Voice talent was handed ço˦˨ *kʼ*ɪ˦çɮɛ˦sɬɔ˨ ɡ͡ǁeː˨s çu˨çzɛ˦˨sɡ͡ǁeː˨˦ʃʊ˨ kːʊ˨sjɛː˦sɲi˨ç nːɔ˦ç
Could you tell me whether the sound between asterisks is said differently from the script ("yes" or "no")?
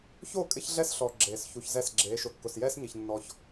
no